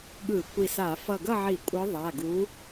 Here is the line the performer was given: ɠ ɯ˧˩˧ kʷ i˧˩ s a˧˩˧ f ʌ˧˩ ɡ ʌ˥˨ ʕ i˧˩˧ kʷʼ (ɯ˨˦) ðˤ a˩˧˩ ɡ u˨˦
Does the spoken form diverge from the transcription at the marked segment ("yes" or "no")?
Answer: no